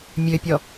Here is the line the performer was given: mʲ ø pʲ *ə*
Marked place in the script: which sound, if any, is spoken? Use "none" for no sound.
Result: ɔ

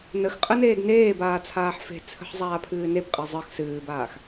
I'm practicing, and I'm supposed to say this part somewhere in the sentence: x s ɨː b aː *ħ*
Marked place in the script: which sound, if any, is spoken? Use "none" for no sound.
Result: x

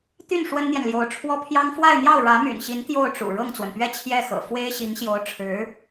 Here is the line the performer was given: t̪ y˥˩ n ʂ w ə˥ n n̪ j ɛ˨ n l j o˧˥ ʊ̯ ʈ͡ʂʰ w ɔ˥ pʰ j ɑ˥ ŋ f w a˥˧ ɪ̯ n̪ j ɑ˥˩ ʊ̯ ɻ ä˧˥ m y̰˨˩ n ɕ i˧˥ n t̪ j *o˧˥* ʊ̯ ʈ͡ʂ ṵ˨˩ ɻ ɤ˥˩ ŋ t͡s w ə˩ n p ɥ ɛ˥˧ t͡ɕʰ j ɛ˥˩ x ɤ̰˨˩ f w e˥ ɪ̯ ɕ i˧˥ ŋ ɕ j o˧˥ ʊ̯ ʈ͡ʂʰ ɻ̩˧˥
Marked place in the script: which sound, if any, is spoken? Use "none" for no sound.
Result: o˥˩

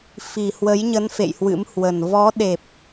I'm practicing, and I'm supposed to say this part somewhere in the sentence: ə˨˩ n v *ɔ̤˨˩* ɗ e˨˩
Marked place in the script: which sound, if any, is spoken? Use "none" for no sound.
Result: ɔ˨˦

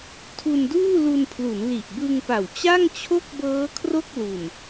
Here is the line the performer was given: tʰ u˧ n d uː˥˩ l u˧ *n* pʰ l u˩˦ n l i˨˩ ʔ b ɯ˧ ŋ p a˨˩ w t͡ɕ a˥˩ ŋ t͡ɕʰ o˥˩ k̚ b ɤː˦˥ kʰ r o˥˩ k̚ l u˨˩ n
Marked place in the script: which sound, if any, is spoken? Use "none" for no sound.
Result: n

